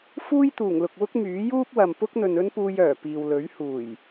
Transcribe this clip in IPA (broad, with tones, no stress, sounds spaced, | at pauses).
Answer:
f uː˥ j t̪ uː˨˩ ŋ l ʊ˨ k̚ w ʊ˥ k̚ m yː˨˥ j uː˥ p̚ w ɐ˨ m p ʊ˥ k̚ n̪ ɵ˨ n ɵ˥ n p uː˧ j œː˨˩ p iː˨ w l ɵ˨˥ ɥ h uː˨˩ j